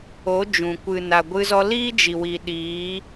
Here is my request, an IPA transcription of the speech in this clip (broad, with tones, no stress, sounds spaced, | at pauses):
o˨˦ d͡ʒ ũ˨ kʷ ɨ˨ n a˨ ɡʷ ɨ˧ z ɔ˧ l iː˦ d͡ʒ i˨ w i˨ ɗ iː˨˦